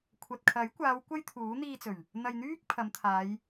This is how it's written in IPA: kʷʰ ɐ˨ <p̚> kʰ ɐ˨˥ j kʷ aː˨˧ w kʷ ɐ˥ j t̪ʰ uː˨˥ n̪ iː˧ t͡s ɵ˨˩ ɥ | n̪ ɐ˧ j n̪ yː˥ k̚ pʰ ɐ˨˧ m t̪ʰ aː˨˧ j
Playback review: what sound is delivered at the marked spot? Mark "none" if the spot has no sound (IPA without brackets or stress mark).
t̚